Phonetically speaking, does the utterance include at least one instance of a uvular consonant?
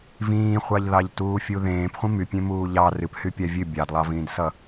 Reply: yes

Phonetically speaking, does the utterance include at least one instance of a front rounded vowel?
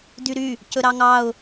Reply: yes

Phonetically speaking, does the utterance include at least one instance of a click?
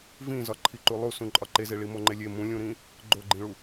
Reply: yes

